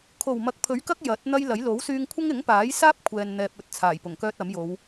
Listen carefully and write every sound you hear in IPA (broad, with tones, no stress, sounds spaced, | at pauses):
kʰ o˨˩ w m ɐ˨˥ k̚ pʰ ɵ˨˥ ɥ k ɐ˥ k̚ j ɐ˨˥ t̚ n̪ ɐ˥ j l ɐ˨˥ j l o˨˥ w s yː˧ ŋ kʷʰ ɐ˥ ŋ ɪ˨˥ ŋ p aː˨˥ j s aː˥ p̚ kʷʰ ɛː˨ n n̪ ɛː˨ p̚ ɵ˨ t̚ t͡sʰ aː˨˩ j p ʊ˨˩ ŋ k œː˥ t̚ ɐ˨˥ m j o˨˧ w